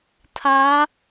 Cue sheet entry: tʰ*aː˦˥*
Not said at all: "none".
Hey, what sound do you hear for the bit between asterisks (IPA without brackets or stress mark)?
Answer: aː˦˥